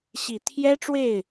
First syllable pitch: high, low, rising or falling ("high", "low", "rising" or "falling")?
low